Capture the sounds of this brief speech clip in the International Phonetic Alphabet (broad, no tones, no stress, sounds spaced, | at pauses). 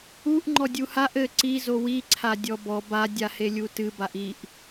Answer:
u ʔ ŋ͡ǃ ɔ dʲ u h a ʔ ɘ ǀ i z o w i ǀʰ a dʲ ɔ b ɔ b a dʲ a h e lʲ u t ɨ b a ʔ i ʔ